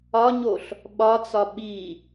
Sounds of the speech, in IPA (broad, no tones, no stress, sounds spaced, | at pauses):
ɒ ɲ o ɬ | ɓ ɒ t͡s ɒ ɓ i